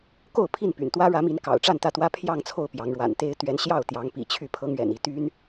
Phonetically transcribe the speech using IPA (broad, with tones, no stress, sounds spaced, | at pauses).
k o˥˨ ʊ̯ pʰ i˥˨ n p y̰˨˩ n t̪ w ä˦ ɻ ä˨˦ m i˨˦ n k ɑ̰˨˩ ʊ̯ ʈ͡ʂ a˥˨ n t̪ ä˥˨ t̪ w ä˦ pʰ j ɑ˥˨ ŋ t͡sʰ o˥˨ ʊ̯ p j ɑ˨˦ ŋ ɻ w a̰˨˩ n t̪ e˦ ɪ̯ t̪ ɥ ɛ˨˦ n ɕ j ɑ˥˨ ʊ̯ t̪ j ɑ˨˦ ŋ p ḭ˨˩ t͡ɕʰ y˥˨ pʰ ɤ˦ ŋ ɥ ɛ̰˨˩ n i˥˨ t̪ y˦ n